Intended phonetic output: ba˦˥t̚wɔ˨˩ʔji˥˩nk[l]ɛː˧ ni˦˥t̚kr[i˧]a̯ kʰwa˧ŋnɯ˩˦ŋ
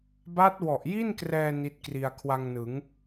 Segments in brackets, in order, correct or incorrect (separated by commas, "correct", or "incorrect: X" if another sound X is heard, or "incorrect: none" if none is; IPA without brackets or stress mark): incorrect: r, correct